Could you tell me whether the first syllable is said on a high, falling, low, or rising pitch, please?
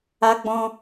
high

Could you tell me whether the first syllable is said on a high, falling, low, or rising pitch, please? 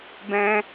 high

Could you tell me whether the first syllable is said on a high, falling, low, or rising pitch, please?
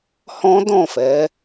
high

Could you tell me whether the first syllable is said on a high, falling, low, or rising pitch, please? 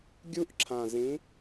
high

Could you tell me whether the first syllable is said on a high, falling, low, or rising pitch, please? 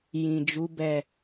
low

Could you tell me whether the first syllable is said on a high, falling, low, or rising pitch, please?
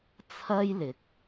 high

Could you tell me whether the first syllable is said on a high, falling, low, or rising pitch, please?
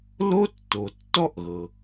high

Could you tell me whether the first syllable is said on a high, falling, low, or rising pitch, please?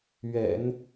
low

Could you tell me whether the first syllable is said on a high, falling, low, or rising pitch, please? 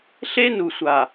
high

